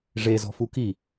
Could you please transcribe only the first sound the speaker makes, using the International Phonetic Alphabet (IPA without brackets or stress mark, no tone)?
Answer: ʐ